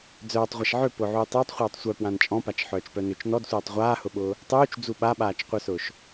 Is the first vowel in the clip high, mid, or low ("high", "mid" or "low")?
mid